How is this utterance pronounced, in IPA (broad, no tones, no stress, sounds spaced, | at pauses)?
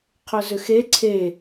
qʰ ɵ z ʏ x e ǀʰ e